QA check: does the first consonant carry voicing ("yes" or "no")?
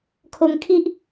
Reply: no